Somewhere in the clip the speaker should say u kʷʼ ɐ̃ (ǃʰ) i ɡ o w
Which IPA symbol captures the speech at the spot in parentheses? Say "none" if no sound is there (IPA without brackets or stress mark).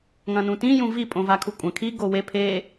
kʰ